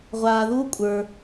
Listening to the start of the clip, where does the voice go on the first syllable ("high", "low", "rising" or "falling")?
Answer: low